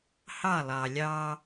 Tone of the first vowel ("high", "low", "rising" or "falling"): falling